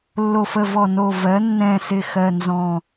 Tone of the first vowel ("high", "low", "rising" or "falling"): low